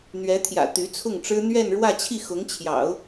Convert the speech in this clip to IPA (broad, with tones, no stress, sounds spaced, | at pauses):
n̪ ɥ ɛ˧˥ t̪ʰ j ä̰˨˩ t̪ y˧˥ t͡sʰ ʊ˥˩ ŋ ʈ͡ʂ ɻ̩˥ n̪ ɥ ɛ˥˧ n ɻ w ä˥˧ t͡ɕʰ i˥˩ x ʊ˧˥ ŋ t͡ɕʰ j ɑ̰˨˩˦ ʊ̯